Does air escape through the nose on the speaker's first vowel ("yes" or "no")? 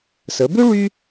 no